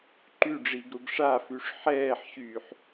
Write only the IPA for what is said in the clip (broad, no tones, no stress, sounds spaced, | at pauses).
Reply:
ǃ y ɖ͡ʐ i ɡ ɾ u ɡ ʂ a f y ʂ ħ ɛː ħ ɕ yː ħ